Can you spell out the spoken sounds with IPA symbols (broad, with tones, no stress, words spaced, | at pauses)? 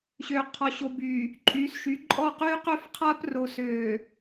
ɕøː˨ qʰɔ˨ ɕo˨byː˨ | ǃʼyː˨˦sʃy˨˦ ǃʼɔ˦˨qyː˦ qø˦fqʰaː˦pro˨ søː˨